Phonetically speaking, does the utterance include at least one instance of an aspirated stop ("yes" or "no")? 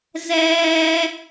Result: no